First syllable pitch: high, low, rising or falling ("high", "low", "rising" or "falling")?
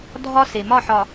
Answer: high